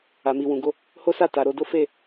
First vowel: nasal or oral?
oral